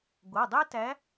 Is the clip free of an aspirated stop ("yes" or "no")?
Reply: yes